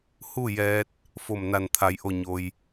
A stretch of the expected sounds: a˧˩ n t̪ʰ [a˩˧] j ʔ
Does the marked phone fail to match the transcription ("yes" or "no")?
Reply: no